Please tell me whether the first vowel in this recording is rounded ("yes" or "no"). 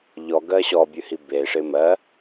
yes